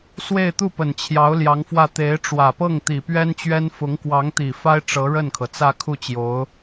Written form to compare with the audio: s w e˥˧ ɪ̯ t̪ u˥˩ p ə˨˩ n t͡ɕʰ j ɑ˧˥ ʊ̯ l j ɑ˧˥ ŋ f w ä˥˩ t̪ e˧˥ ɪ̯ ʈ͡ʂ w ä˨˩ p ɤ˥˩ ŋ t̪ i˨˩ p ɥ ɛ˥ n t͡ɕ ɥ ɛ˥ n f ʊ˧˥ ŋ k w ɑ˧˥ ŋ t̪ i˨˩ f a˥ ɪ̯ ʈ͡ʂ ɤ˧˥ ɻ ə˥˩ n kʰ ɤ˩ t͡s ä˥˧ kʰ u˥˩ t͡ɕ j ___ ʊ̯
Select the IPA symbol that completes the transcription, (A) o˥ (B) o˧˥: B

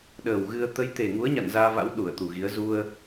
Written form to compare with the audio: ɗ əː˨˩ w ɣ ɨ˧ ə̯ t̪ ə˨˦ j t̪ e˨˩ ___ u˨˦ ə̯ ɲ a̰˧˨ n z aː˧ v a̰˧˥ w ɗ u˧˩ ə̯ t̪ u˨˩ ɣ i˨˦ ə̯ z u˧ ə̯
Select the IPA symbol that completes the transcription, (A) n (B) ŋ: B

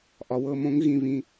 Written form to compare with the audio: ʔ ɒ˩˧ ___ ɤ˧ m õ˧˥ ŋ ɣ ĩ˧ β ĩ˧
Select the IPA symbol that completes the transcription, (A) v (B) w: B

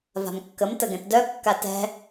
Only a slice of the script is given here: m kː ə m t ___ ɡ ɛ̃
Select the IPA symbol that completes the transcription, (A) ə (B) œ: A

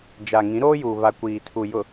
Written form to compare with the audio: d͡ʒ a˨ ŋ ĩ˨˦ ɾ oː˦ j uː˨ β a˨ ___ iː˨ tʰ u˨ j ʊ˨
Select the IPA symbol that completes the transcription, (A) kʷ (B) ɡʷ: A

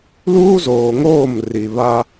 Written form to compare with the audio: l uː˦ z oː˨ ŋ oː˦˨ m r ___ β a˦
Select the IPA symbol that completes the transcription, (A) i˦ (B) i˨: B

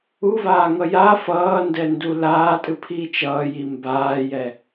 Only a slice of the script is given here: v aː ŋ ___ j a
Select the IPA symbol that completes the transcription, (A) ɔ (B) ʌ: B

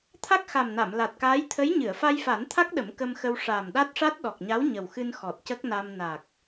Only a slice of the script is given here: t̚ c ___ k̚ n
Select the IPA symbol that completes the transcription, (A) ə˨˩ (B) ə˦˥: B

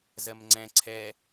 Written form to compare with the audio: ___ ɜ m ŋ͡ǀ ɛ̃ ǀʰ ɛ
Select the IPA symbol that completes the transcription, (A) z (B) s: A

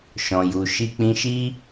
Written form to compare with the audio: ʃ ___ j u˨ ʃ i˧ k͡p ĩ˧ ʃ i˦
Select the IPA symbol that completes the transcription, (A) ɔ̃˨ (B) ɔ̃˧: A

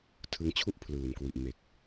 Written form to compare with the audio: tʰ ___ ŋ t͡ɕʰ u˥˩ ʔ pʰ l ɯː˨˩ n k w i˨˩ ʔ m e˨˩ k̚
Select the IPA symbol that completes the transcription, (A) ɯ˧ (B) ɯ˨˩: A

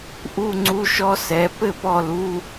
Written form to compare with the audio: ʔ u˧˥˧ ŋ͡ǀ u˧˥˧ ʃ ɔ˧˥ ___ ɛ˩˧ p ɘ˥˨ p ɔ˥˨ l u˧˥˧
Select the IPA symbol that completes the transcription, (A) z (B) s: B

